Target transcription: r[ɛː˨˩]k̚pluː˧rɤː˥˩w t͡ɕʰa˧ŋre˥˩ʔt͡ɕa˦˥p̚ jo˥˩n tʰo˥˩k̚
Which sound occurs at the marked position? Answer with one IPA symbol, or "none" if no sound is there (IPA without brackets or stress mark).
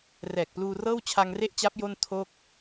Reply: ɛː˨˩